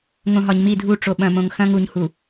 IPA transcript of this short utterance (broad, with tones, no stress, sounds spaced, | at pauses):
ŋ õ˨ ɦ ɒ˨ ɲ m i˦˨ dʱ u˦˨ ʈ͡ʂ o˨ ɓ ɐ̃˨ m õ˨ ŋ x ɐ̃˦ ŋ u˨ ɲ h u˨